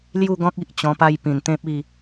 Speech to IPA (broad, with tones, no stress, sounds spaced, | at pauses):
l j u˥˧ ɡ ɔ̃˦ k̚ i˦ ʔ t͡ɕ ɔ̃˧ p a˦ j p ĩ˨˩ n t̪ ẽ˦ p̚ i˥˧